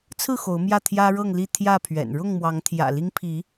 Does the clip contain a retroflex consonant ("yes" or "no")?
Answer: yes